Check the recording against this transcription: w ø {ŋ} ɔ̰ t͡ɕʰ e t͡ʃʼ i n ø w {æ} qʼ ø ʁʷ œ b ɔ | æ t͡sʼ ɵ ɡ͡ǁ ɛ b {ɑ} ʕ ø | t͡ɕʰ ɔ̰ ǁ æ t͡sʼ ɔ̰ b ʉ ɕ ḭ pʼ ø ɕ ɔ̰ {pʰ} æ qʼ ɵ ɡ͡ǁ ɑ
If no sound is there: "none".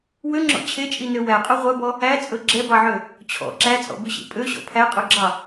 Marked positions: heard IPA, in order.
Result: ŋ͡ǁ, æ, ɑ, pʰ

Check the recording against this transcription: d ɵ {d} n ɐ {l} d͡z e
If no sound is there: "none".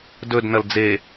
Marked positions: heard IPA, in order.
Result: d, l

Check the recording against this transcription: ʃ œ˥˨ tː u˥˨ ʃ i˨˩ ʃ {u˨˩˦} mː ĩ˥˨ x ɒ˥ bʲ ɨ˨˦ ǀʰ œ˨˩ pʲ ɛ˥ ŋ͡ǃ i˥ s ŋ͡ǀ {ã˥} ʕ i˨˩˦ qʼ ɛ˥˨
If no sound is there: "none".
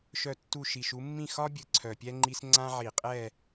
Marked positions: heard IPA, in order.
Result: u˨˦, ã˥

